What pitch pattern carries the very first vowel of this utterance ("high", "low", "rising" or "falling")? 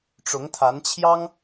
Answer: rising